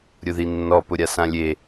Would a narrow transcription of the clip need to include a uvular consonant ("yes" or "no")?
no